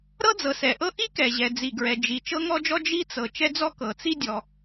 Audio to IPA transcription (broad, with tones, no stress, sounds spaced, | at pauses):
ɾ ɤ˥ d͡z ɤ˩ s ɛ˩ ʔ ɤ˥ ʔ i˥ k ɛ˩ ʑ ɛ˩ d͡z i˩ ɡ ɹ ɛ˩ d͡ʒ i˩ t͡ʃ ɤ˥ ŋ ɔ˥ d͡ʒ ɔ˥ d͡ʒ i˥ t͡s ɤ˩ t͡ʃ ɛ˥ d͡z ɔ˥ k ɤ˩ t͡s i˥ dʲ ɔ˩